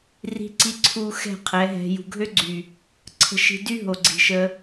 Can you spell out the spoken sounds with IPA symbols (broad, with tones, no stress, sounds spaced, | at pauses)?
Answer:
r i̤˧ ǀ i˧ ǀʰ u˨ x ɛ̤˦˨ qʰ ɛ˨˦ ɦ ɛ̤˧ j ṳ˨ ɡʱ ø˦ ɡ͡ǀ y˨ | ǀʰ ə̤˧ ʃ i̤˧ d y˦ ɦ o˨ ɡ͡ǀ i̤˨ ʃ ə˧